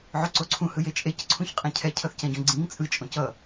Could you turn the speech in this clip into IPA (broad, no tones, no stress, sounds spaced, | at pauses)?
ʕ o ǀ o ǀʰ ũ h ɯ j e t͡ʃʼ e c ǀʰ ũ ç qʼ ɛ̃ cʰ ɛ cʰ ʌ θ c ɛ̃ ɟ õ ɡ͡ǀ ĩ ŋ t͡sʼ ɯ t͡ʃʼ õ c ʌ